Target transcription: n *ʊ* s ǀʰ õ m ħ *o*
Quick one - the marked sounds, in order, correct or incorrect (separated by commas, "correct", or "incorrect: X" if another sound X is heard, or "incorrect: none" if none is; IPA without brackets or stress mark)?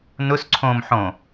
correct, incorrect: õ